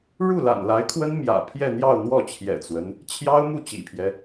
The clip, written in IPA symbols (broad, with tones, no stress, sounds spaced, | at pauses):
ɻ u˥˩ l a̰˨˩ n l a˧˥ ɪ̯ kʰ w ə˥ n m j ä̰˨˩ pʰ j ɛ˥˧ n̪ j ɑ˥˧ ʊ̯ n̪ w ɔ˥˩ t͡ɕʰ j ɛ̰˨˩ t͡s w ə˦ n | t͡ɕʰ j ɑ˥ ʊ̯ m u˥˩ t͡ɕ ḭ˨˩ pʰ j ɛ˦